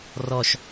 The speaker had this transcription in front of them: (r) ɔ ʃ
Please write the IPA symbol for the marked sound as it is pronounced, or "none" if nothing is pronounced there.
r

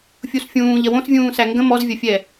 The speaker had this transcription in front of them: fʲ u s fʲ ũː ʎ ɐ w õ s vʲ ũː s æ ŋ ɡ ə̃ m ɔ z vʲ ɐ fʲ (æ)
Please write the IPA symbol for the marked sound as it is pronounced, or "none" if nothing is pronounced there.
ɛ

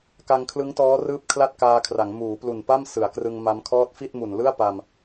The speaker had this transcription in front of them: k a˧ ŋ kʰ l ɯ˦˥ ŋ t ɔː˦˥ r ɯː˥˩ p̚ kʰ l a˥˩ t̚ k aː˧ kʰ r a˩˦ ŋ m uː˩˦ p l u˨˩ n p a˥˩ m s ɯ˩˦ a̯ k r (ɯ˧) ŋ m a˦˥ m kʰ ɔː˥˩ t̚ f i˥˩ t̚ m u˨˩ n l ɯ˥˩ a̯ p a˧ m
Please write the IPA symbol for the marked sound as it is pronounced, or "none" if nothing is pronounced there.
ɯ˧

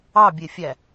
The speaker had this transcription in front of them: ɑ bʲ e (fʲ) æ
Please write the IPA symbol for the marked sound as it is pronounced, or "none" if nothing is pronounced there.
fʲ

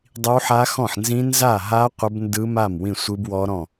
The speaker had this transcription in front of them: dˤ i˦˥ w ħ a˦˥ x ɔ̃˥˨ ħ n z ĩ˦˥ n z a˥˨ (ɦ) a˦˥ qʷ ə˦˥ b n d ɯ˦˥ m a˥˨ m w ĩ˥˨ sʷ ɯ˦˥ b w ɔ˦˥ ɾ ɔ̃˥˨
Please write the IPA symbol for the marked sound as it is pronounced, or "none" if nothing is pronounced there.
ɦ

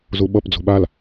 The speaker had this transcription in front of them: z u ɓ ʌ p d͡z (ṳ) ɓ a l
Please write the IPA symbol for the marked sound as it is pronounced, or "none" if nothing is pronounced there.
ṳ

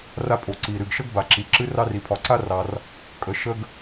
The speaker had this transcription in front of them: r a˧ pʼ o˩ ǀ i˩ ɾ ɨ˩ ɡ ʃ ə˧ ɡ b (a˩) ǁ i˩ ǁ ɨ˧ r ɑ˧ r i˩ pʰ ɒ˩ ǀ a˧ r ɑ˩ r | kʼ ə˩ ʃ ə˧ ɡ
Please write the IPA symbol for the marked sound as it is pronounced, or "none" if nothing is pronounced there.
a˩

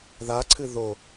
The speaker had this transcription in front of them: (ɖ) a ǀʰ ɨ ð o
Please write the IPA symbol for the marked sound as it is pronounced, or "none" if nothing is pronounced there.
ð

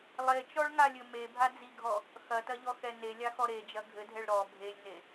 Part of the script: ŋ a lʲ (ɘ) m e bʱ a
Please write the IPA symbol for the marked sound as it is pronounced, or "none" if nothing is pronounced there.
ɘ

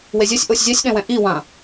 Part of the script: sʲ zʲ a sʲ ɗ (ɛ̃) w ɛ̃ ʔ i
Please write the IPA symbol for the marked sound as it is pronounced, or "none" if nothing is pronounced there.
ɛ̃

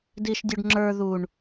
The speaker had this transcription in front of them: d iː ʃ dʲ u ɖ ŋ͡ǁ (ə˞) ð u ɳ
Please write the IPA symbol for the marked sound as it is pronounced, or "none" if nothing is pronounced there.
ə˞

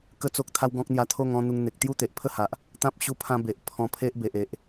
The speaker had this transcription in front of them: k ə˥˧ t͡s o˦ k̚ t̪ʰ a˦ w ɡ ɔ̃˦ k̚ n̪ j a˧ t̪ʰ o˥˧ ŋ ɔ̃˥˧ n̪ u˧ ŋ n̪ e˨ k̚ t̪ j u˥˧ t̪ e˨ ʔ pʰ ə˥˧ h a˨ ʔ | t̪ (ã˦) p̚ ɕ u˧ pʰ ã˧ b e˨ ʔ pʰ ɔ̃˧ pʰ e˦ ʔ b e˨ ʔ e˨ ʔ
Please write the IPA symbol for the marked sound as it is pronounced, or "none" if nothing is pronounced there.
ã˦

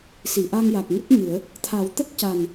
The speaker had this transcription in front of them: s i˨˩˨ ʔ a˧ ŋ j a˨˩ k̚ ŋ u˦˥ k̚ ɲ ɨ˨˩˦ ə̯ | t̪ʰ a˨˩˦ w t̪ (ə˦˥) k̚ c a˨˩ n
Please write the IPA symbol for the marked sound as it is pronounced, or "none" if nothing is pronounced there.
ə˦˥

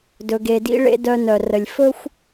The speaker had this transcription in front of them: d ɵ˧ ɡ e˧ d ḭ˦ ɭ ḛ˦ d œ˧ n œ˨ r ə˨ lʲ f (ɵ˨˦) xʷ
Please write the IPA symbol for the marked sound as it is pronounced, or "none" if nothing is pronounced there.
ɵ˦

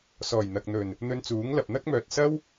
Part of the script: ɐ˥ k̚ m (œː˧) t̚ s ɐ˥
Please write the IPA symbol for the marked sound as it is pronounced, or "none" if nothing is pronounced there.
œː˨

